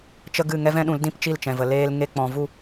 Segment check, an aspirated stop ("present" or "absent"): absent